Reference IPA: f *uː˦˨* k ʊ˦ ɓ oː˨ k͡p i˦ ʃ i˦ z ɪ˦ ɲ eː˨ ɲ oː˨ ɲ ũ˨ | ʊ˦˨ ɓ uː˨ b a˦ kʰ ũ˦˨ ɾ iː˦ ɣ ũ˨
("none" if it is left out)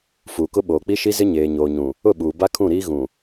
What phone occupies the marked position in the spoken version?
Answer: uː˨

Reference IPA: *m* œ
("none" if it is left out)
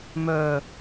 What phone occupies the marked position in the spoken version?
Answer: m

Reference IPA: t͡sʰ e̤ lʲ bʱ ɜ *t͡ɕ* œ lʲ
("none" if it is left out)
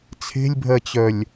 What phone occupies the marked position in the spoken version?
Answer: t͡ɕ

